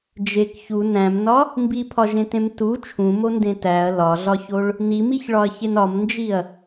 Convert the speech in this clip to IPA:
d͡ʒ e k ç u n æ̃ m n ɒ | m b i pʰ ɒ ʒ ẽ t ẽ m t u t͡ʃʰ ũ m o n d ẽ t æ ɐ̯ l ɒ ɮ ɒ ç o ɭ | n i m i ç ɭ ɒ ɐ̯ ç e n ɒ m n d͡ʒ i ɐ̯

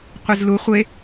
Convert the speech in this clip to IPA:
qʷ e z l u χʷ e

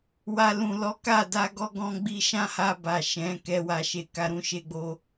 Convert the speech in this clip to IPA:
w a˨ l ũ˨ l ɔ˨˦ k a˦˨ d a˧ ɡ ɔ˧ ɡ ɔ̃˧ ɡ͡b i˧ ʃ ã˦ h a˧ b a˨ ʃ ɛ̃˨˦ k ɛ˧ w a˨ ʃ e˨ k a˧ ɾ ũ˧ ʃ e˧ ɡ͡b o˧

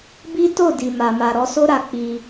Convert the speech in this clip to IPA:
b i˦ t o˦˨ d i˨ m a˨ m a˨ ɾ ɔ˧ s o˦ ɾ a˧ k͡p i˧

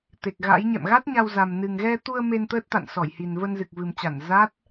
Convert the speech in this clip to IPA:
t̪ e˨˩ k̚ ɣ a̰˧˥ j ɲ ɛ̰˧˨ m ɣ a˦˥ t̚ ɲ a˧ w z a˨˩ m n ɨ˨˩ ŋ ɣ ɛ˧ t̪ u˧ ə̯ m e˧ n t̪ əː˦˥ t̚ t̪ a̰˧˨ n s ɔ˧˩ j h i˨˩ n v ə˧ n z ɨ˨˩ k̚ v ɨ˨˩ m t͡ɕ a˧˩ n z a˦˥ t̚

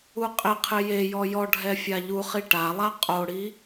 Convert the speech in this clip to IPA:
u qʼ ɪ qʰ ɪ j e j ɔ j ɔ ɖʱ ɛ fʲ a ʎ u χ i ʈ a lˠ a qʼ o ɽ i

